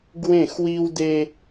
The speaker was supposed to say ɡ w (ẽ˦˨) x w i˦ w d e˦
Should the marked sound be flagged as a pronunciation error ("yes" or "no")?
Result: no